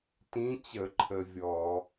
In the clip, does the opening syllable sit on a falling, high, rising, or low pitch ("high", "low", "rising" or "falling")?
rising